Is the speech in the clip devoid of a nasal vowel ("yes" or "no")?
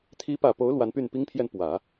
yes